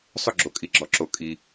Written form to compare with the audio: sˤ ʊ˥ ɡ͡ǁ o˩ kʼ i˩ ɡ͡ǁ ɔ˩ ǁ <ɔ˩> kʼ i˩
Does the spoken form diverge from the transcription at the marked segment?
yes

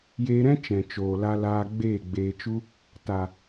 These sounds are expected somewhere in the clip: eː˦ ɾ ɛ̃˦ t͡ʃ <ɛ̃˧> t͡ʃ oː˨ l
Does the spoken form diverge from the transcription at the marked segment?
yes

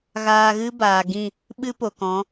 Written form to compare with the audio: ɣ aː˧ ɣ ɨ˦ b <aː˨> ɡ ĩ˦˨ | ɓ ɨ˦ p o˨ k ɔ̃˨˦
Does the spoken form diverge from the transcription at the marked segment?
no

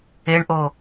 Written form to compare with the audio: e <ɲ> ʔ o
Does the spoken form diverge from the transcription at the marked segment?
yes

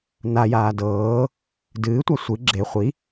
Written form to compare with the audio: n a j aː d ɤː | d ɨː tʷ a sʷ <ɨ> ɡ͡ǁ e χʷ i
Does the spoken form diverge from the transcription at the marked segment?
no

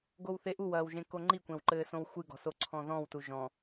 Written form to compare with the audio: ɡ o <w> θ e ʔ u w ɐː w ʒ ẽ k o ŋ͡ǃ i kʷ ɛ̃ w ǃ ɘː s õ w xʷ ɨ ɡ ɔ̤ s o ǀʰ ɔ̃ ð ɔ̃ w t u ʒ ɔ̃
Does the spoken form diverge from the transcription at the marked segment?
no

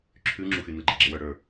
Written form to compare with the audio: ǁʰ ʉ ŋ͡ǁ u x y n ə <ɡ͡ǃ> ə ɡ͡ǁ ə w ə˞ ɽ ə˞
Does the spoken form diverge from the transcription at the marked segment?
no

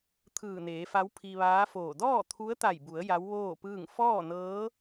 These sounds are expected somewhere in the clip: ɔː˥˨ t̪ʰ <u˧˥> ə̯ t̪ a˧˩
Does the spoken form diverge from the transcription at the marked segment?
no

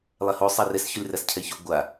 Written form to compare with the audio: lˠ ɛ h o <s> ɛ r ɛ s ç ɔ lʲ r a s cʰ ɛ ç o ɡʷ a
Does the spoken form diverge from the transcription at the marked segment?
yes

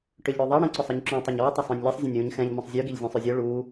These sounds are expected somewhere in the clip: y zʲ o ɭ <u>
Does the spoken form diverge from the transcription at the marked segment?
no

